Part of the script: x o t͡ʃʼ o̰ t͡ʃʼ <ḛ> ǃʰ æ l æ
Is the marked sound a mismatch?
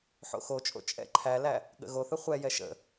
yes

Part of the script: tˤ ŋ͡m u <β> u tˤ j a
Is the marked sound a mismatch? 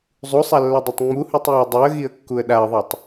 yes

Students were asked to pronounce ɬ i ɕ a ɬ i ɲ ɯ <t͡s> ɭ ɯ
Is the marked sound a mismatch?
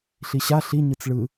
no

